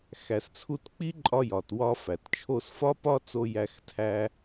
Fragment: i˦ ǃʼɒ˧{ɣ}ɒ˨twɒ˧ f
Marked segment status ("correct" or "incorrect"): incorrect